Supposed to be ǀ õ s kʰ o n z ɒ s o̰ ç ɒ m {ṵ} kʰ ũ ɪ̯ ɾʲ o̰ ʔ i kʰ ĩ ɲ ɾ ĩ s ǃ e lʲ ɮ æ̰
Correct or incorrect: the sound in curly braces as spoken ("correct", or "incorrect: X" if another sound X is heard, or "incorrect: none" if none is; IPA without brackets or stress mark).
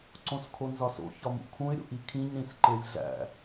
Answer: correct